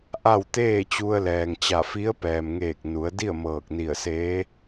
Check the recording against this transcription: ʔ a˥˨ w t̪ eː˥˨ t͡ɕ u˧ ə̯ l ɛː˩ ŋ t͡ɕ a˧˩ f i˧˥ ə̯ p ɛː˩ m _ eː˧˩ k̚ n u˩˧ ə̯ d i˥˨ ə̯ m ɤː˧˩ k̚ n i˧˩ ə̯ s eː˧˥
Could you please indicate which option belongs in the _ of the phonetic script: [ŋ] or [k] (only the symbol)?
ŋ